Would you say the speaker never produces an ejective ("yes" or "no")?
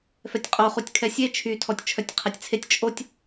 no